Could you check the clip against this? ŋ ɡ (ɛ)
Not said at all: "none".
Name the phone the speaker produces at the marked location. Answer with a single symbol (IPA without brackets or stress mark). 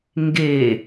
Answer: e